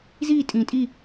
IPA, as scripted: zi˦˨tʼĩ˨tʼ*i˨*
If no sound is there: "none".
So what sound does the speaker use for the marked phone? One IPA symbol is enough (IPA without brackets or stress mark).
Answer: i˦˨